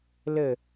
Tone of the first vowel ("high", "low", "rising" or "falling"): falling